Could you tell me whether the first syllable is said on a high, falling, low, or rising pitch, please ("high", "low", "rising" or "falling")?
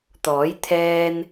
rising